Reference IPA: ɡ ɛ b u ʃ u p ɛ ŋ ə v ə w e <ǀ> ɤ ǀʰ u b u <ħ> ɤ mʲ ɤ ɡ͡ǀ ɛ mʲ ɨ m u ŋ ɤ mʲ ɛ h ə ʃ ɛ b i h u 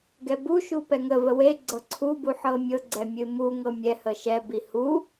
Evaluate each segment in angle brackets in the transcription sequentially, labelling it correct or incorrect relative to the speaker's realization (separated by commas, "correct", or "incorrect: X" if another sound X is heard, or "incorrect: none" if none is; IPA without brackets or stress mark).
incorrect: ɡ͡ǀ, correct